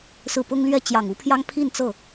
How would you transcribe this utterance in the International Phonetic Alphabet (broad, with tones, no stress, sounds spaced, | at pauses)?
s ɹ̩˥˩ p ʊ˥ ŋ l ɥ ɛ˥˩ t͡ɕ j ɑ˨˩ ŋ u˧˥ pʰ j ɑ˥ ŋ pʰ i˥˧ n t͡s ɤ˥˩